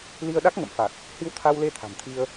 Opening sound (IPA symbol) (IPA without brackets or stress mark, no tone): l